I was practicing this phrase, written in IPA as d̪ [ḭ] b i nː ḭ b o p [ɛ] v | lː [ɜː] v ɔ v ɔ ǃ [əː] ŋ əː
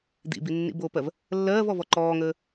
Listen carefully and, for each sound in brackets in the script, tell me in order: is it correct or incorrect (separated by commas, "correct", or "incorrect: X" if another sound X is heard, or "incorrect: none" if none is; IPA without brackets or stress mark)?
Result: correct, incorrect: ɜ, correct, incorrect: ɔː